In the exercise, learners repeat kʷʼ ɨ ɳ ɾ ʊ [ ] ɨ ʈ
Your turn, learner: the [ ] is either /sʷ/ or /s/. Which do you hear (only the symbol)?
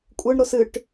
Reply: s